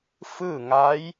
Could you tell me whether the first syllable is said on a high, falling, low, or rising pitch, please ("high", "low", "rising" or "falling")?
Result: falling